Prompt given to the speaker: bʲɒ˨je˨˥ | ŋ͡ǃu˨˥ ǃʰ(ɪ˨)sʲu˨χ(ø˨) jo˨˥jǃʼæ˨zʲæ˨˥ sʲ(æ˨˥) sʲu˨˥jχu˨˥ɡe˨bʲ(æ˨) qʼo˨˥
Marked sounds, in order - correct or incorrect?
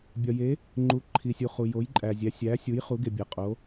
incorrect: i˨, incorrect: u˨, correct, correct

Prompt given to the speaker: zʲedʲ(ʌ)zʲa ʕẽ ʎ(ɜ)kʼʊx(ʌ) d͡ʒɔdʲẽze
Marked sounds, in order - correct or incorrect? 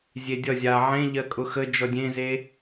correct, correct, incorrect: ə

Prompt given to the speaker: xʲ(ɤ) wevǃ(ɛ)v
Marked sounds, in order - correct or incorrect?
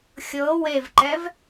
correct, correct

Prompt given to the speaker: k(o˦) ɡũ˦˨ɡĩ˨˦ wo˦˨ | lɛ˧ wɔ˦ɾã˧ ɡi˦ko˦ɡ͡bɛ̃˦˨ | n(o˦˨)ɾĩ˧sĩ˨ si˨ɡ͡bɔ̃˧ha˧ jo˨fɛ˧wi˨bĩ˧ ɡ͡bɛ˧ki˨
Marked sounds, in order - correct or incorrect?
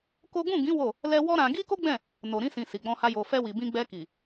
correct, incorrect: o˨

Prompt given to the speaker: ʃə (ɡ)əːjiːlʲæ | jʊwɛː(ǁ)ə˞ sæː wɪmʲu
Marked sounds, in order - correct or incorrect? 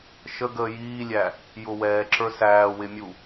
correct, correct

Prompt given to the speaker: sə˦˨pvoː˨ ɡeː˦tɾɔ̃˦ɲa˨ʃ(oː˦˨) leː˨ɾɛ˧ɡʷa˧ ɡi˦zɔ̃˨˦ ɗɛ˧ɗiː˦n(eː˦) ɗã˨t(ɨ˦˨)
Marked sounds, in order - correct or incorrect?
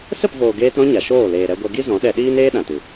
correct, correct, incorrect: ɨ˨

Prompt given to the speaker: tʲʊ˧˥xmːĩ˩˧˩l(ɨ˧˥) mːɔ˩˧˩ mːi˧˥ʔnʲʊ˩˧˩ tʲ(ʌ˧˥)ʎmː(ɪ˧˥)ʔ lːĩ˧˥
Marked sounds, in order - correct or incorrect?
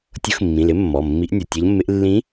incorrect: ɪ˧˥, correct, correct

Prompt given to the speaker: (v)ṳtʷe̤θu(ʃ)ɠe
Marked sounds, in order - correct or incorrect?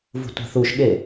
correct, correct

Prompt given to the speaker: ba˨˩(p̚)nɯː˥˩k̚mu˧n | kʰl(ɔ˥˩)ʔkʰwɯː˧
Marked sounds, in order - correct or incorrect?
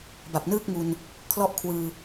correct, incorrect: ɔ˦˥

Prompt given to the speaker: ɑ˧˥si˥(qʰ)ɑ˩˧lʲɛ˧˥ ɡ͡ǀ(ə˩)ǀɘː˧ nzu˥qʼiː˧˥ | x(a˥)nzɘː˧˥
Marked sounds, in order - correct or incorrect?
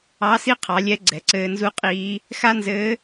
correct, incorrect: ɛ˩, correct

